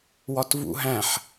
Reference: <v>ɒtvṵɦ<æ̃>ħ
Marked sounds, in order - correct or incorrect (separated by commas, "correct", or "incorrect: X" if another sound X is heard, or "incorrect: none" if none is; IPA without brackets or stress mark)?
incorrect: w, correct